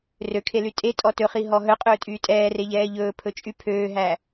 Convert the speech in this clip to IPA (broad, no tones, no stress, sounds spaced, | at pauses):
r ø kʰ e l y tʼ e tʼ ɔ t ɵ χ i ɦ ɔ ɦ œ qʼ ɵː tʼ yː tʼ ɛː r e ʎ ɛː ʎ ɵː pʰ ɵ t͡ʃʼ y pʰ øː ɦ æ